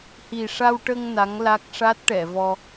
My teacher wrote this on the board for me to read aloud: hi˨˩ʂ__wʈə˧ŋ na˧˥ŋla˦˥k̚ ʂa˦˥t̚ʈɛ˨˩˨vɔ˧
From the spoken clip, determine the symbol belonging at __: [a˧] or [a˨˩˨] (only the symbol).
a˧